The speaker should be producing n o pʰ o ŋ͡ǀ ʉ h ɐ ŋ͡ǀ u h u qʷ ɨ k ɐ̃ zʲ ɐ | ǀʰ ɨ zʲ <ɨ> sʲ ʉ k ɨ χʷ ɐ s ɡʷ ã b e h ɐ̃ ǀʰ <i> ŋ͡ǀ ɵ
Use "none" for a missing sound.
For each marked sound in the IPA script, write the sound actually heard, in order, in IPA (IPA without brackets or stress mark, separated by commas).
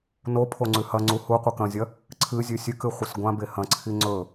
ʉ, i